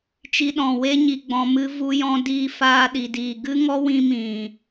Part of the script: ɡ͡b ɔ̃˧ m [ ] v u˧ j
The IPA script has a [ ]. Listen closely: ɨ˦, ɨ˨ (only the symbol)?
ɨ˦